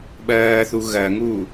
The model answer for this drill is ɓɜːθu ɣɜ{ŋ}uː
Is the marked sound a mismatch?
no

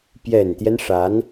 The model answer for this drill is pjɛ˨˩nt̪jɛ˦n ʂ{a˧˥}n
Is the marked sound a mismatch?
no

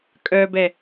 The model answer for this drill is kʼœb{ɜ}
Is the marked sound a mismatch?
yes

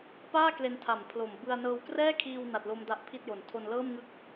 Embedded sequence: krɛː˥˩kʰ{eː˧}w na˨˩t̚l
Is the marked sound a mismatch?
yes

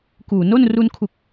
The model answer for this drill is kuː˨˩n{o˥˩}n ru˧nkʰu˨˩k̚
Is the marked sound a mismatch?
no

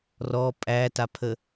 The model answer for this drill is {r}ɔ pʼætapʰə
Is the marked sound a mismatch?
no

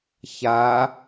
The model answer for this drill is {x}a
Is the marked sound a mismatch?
yes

